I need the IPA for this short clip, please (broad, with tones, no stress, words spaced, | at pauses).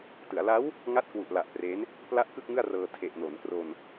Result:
tɯ˩˦a̯la˦˥w | ŋa˦˥t̚kwu˨˩ʔla˨˩ʔ pre˦˥n | pla˥˩ʔkɯ˥˩k̚ŋɯ˥˩a̯rɤː˧ tʰe˨˩ʔno˩˦nkro˧n